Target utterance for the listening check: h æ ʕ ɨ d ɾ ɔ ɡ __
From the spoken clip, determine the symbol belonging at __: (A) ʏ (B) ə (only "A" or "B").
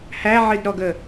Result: B